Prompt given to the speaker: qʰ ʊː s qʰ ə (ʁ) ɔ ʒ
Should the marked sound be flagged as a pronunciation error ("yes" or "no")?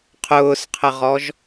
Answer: no